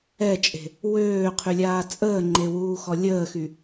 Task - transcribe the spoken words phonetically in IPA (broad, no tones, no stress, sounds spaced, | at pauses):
ɛ t͡ʃʼ e̤ | w øː qʰ y lʲ aː t͡sʼ əː ŋ͡ǃ e w uː x ɔ lʲ əː x y